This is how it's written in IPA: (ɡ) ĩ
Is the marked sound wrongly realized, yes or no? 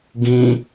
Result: no